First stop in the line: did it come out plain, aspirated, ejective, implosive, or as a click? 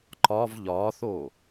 click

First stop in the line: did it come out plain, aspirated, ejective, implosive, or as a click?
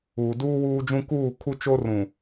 plain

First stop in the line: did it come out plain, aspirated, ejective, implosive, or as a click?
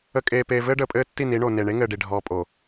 ejective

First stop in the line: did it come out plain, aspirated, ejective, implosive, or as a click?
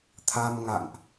aspirated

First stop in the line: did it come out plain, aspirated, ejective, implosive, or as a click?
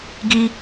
plain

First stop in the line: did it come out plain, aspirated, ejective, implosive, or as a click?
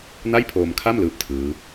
aspirated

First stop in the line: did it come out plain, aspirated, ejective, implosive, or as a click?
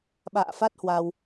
implosive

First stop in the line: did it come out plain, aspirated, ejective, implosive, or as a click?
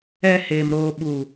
implosive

